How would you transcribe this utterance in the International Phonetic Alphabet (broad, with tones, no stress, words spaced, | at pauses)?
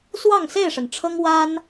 swɑ˥˨ŋse˥˨ɪ̯ʂə˩nʈ͡ʂʰɤ˦ŋ wa˦n